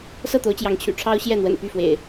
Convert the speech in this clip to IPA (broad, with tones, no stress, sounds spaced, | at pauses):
s ɤ˥˨ t̪ o˨˦ ʊ̯ t͡ɕ j ɑ˨˦ ŋ t͡ɕʰ y̰˨˩ ʈ͡ʂʰ ɑ˦ ʊ̯ ɕ j ɛ˥˨ n̪ w ə̰˨˩ n p y˥˨ f w ḛ˨˩ ɪ̯